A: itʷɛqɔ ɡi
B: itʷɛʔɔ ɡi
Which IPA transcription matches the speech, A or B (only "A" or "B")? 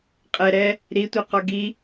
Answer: A